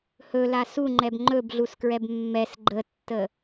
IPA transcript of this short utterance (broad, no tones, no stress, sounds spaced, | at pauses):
h ɵ l a s u ŋ͡ǃ ɛ b ŋ͡ǃ ɵ b ɮ u s k ɹ ɛ b mː ɛ s ɡ͡ǃ ə tː ə